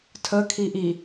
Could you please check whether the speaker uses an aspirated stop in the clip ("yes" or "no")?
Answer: yes